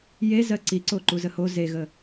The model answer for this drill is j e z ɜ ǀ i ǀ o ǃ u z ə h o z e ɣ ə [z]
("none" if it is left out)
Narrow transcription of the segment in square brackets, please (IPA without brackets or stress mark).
none